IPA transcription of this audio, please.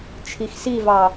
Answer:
t͡ʃʰ i x s i v ɑ

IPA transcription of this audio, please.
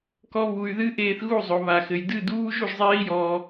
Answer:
k ɔ˦ β u˧ y̯ ð ɨ˦ ʔ eː˧ θ ɣ u˦˨ zˤ o˨ β a˨ x ɘ˨ j d ɨ˦˨ d uː˦ ʒ u˧ ʒ zˤ eː˦ i̯ j ɔː˧

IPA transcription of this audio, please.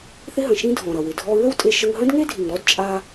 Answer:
θ ɪ˧ ɦ ə̃˩ ʃ ĩ˧ dʱ ɔ̃˩ ɾ ʌ˩ w ɪ˩ dʱ ɔ˧ ɹ ə˥ w tʼ e˧ ʃ ə˧ ŋ ɦ ə̃˥ d ŋ e˥ dʱ i˩ ŋ ɾ ɔ˥ d t͡ʃʼ a˧

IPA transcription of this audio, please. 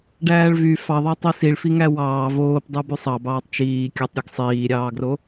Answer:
ɖ æː ɭ v y f ɑ ðˤ ɑ tˤ i s i ɭ f i ŋ æ w ɑː v oː p dˤ u b y sˤ ɑ b ɑː tˤ t͡ʃ iː kʲ ɯ tˤ ɾʲ ɯ ɡ sˤ iː ɾʲ ɑː ɡ r o

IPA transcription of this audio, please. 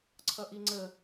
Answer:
ǀʰ ʌ ʔ i ŋ͡ǀ ə

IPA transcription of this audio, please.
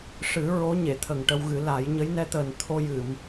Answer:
ʂ ɨ˨˩˦ ɹ o˧˥ ɲ e˨˩˨ t̪ʰ ə˨˩ ŋ ʈ ə˧ w ɣ ɨ˨˩˦ l a˨˩˦ j ɲ ə˧˥ j n ɛ˧˥ t̪ əː˨˩ n t̪ʰ o˧ j ɨ˨˩˨ m

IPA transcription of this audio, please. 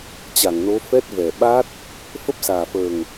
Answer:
t͡ɕ a˧˩ ŋ n o˨˦ f ɛ˦˥ t̚ v ɛ˨˩ ɓ a˦˥ t̚ | f ə˦˥ p̚ s aː˨˩ f əː˨˩ ŋ

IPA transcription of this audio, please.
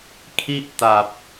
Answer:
kʰ i˥˩ ʔ t a˨˩ p̚

